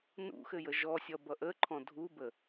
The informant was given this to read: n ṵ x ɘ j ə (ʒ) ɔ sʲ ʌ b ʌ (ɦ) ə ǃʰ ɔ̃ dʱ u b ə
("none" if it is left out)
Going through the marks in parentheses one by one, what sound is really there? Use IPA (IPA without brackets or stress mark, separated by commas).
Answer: ʒ, ʔ